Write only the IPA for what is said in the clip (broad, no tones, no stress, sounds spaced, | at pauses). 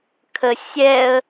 kʰ ə sʲ ɛ ə̯